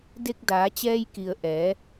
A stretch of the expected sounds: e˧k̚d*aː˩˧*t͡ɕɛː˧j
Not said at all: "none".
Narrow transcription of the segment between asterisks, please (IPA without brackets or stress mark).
aː˩˧